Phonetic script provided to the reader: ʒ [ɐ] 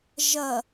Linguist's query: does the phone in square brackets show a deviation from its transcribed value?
no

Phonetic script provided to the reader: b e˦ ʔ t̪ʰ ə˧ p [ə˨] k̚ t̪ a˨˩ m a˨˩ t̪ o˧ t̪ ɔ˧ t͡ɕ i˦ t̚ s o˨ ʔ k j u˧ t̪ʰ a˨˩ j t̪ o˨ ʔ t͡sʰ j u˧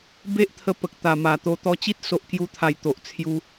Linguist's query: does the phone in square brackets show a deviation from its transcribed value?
no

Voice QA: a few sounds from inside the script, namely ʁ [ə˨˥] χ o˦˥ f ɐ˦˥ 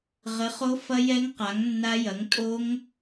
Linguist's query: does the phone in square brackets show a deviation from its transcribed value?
no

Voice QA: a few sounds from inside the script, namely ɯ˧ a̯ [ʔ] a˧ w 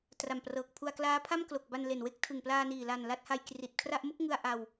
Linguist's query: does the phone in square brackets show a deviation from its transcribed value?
no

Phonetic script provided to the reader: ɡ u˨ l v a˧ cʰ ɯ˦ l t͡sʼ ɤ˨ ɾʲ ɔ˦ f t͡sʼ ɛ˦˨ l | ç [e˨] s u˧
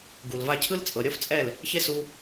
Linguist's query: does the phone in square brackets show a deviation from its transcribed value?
yes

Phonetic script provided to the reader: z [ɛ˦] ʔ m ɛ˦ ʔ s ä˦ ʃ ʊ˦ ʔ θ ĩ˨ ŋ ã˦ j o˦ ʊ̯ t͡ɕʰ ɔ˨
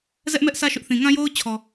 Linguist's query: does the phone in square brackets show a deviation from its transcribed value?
no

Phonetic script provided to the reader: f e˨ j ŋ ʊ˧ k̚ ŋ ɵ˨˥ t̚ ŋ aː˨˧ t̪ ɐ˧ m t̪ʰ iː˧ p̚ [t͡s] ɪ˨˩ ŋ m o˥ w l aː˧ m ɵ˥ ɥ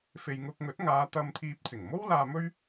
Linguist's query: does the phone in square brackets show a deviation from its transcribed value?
no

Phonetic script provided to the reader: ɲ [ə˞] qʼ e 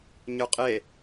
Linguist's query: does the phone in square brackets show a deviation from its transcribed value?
no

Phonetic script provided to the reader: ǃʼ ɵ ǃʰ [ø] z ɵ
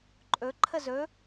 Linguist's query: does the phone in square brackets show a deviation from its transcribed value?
yes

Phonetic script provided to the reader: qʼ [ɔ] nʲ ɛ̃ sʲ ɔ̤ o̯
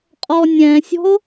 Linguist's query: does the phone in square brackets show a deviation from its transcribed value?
no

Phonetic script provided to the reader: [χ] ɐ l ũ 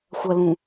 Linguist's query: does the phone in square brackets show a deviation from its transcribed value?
yes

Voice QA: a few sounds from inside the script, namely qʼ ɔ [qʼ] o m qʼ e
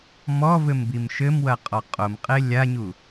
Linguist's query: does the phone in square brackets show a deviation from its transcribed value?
no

